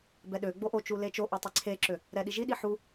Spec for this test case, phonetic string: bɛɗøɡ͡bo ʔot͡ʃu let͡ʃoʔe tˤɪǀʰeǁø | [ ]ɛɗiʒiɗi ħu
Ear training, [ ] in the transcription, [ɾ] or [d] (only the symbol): ɾ